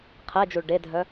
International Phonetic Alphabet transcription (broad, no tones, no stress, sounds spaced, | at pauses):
qʰ e d͡ʒ u ɭ ɖ e dʱ œ